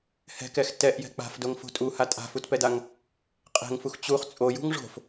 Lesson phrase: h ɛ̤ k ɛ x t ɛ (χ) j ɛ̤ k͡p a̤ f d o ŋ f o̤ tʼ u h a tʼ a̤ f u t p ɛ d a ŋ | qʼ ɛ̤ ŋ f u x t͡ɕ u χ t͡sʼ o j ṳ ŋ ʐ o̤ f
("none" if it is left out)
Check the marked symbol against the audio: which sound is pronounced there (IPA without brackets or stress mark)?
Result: ʔ